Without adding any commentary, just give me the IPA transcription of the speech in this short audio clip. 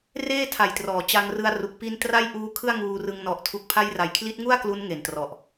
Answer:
reː˥˩tʰa˨˩jtrɔː˩˦ t͡ɕa˧ŋrɯ˧a̯ru˨˩k̚ pi˧n tra˥˩jʔuː˦˥kʰɯ˥˩a̯ ŋuː˧rɯ˧ŋ nɔ˨˩ʔtʰu˨˩k̚pʰa˧j ra˩˦jkʰli˦˥t̚ŋu˥˩a̯ klu˦˥n ŋe˨˩ntrɔ˨˩ʔ

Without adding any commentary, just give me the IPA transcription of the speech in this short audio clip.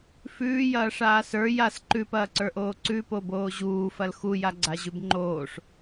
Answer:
fʉːjɐːʂaː sə˞ jas ǃʉpɐːǀə˞ʔoː ǀʉpoboː ʑuːfɐl xujaɡ͡ǀaʑʉb ŋ͡ǃoːʂ

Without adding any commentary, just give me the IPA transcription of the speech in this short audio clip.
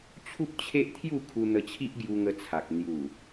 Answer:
t͡ɕʰu˦p̚t͡ɕʰe˦ʔt̪ʰju˥˧ kʰu˧n̪ə˧t͡ɕʰi˦ʔ ɡju˧ŋə˧t͡sʰa˨k̚ n̪ju˨˩

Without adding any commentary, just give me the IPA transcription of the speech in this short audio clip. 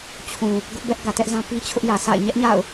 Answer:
t͡ɕʰũ˨ | ɡʊ˦ʔbɛ˦ʔ ɡä˨tɛ˦ʔzã˦pi˦ t͡ɕʰʊ˦ʔjä˨sa̰˦˨ɪ̯ ɲɛ˦ʔɲa̰˦˨ʊ̯

